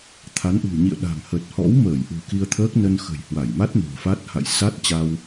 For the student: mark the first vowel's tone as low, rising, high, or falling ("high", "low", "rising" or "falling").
rising